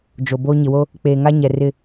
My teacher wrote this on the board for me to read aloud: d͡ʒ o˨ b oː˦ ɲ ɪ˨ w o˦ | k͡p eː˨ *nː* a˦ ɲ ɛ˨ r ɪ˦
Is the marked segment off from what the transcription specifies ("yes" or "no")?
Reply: yes